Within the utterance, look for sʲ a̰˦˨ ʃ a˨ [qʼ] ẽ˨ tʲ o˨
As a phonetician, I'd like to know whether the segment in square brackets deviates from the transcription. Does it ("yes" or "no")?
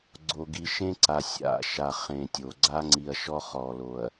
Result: yes